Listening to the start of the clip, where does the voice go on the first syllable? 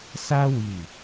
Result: high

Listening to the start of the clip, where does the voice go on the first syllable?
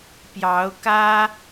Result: rising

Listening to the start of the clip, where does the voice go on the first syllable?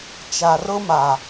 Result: low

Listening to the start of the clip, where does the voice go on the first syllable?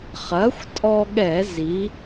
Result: rising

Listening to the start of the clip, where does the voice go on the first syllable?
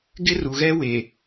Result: high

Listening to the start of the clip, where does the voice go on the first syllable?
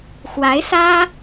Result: rising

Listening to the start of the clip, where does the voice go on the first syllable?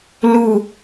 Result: falling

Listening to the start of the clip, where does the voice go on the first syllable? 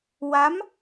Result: rising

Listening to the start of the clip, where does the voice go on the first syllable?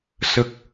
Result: low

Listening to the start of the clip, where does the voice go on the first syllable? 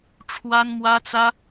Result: high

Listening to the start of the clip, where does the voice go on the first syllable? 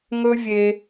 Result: high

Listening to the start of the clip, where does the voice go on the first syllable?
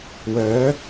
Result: rising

